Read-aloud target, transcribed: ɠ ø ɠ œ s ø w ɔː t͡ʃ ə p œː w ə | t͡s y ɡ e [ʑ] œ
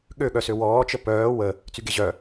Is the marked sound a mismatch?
no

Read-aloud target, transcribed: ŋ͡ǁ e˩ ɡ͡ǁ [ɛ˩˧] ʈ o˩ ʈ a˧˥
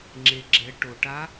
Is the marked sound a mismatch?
no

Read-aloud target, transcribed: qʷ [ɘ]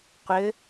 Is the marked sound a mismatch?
no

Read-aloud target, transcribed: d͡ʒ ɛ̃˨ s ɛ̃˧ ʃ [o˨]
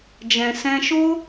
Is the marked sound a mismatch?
yes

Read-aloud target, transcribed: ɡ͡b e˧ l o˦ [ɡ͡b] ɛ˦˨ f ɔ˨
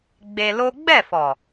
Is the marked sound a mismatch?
no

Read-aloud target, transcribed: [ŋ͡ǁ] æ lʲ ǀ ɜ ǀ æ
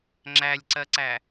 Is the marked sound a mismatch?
no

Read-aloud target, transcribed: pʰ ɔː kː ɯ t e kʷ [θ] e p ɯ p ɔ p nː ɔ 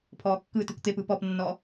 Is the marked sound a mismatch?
yes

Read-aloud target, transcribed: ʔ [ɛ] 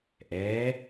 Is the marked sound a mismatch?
no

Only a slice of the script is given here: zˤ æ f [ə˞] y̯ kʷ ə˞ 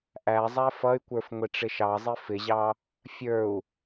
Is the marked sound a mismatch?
yes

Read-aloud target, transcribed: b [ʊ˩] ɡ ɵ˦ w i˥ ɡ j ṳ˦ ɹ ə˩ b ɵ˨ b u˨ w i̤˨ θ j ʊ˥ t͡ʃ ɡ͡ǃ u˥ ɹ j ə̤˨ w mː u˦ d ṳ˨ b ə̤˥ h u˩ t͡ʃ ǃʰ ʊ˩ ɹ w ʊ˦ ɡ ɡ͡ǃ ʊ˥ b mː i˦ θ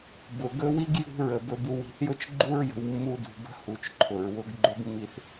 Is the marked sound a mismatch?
no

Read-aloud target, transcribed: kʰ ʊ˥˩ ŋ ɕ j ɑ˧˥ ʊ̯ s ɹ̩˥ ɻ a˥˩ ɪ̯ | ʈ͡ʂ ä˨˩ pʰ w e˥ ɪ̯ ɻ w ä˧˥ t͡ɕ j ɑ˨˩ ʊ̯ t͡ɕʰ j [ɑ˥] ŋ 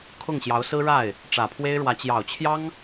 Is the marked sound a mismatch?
no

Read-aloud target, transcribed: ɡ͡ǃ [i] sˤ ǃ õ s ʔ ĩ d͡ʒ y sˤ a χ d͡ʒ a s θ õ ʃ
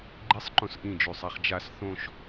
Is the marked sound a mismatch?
no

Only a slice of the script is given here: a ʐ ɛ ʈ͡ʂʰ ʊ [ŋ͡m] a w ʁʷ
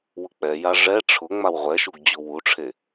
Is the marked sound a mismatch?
no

